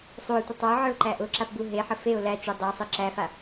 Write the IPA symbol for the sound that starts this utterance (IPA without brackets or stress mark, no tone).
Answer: sˤ